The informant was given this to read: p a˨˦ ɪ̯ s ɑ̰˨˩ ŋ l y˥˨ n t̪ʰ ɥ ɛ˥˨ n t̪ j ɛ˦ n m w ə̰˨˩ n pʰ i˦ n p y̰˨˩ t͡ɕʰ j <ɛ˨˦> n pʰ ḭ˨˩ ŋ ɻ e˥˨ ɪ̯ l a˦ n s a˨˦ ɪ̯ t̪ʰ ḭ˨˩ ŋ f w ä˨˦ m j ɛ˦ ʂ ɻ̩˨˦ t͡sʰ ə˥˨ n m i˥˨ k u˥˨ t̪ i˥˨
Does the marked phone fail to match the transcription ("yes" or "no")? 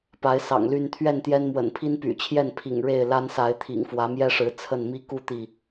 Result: yes